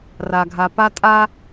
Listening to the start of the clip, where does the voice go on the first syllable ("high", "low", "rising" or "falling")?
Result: low